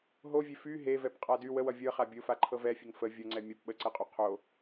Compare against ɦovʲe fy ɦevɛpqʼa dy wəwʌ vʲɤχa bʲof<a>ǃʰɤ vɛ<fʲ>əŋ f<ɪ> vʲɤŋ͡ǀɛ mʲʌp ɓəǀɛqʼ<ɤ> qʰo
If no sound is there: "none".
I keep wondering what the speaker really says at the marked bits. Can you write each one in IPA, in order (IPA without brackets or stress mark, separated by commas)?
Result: a, fʲ, ə, o